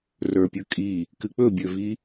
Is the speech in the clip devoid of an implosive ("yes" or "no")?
yes